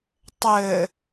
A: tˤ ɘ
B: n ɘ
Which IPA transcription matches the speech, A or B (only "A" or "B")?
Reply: A